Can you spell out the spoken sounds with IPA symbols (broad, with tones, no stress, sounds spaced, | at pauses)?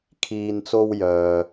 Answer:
kʰ iː˨ n t͡s o˧ w j œː˨